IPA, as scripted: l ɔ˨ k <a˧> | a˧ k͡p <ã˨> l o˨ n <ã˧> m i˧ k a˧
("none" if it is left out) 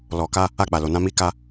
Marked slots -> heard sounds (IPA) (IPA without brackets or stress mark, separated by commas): a˧, a˨, ã˧